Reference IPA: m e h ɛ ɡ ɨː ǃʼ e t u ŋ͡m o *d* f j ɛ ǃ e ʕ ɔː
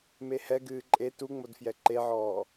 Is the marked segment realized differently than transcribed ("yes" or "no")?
no